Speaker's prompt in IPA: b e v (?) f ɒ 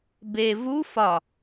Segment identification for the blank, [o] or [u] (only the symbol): u